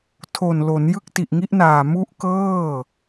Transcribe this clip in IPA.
tʰ o˨˩ n l o˩˦ n j ɯ˦˥ k̚ t i˨˩ ʔ ŋ i˦˥ ʔ n aː˨˩ m u˦˥ ʔ k ɤː˥˩

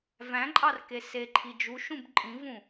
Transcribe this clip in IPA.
v æ̃ ǃʼ ɑ r k e s e ǃʰ i d͡ʒ u ʃ ũ b ǃʼ ĩ v ũ

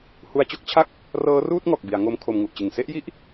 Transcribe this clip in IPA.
h u˧ a̯ t͡ɕ o˥˩ k̚ t͡ɕʰ a˥˩ k̚ | r ɤː˦˥ r uː˥˩ t̚ ŋ ɔː˨˩ k̚ b i˩˦ a̯ ŋ o˦˥ m kʰ o˧ m ŋ u˨˩ ʔ t͡ɕ ɯ˨˩ ŋ s e˥˩ ʔ j i˥˩ ʔ

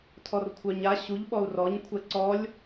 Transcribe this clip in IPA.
tʰ ɔ r kʷʰ œ ɲ a ɕ u ʎ ɓ ɔ u̯ r ɔ ɲ kʷʰ ɛ ǀ ɔ lʲ

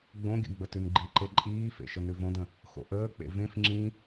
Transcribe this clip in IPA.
ɡ͡b õ ɡʲ ə̰ ɡ͡b ə t ʉ n ɡ͡ǃ i ǃ e ǃʼ iː f ḛ ʃ ə n ʉ v õ d ə̃ | x o̰ ʔ əː k͡p ḛ v ẽ f ŋ͡ǁ ĩ

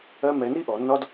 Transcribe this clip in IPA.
ɜ˧ m ɛ˨ n i˦ ʔ ɔ˨ nː ɒ˦ d

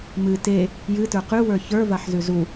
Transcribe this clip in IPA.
m ɨ t e | j ɨ t ə˞ q ʉ w ə˞ ç ə˞ v a ħ z ʉ z u

